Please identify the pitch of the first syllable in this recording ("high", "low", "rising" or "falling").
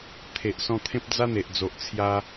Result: low